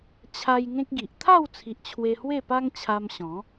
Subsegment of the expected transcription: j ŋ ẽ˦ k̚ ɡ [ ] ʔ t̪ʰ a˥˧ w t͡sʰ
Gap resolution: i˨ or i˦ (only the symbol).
i˨